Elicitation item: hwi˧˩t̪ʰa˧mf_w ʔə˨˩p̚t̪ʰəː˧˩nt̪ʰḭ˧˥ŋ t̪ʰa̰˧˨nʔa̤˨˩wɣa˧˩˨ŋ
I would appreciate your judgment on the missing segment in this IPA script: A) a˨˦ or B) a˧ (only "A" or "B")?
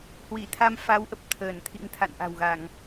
A